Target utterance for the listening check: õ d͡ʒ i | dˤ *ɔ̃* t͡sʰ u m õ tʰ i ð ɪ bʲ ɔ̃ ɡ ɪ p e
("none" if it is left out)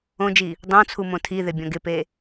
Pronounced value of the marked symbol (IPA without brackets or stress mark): õ